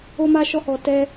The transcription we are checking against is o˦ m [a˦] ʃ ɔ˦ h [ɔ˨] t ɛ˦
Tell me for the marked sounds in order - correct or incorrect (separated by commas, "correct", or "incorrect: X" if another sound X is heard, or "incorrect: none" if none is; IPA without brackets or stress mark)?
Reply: correct, incorrect: ɔ˧